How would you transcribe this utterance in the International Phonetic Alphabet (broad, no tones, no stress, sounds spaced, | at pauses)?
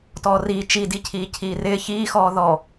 t ɔː r iː t͡ʃ i d i cʰ iː cʰ iː r ɪː ç iː x ɔː ð ɔ